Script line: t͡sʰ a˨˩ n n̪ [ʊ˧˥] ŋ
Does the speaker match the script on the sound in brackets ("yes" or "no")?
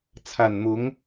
yes